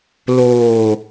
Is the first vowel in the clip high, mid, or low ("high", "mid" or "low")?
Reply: mid